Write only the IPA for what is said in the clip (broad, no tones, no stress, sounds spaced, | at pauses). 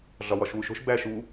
ɮ ɒ w ɒ ʃ w u ʃ o̤ ʃ b æ ʃ u